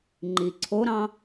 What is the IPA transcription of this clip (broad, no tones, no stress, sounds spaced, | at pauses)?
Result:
ŋ͡ǃ i ǀʰ o ɾ ɑ̃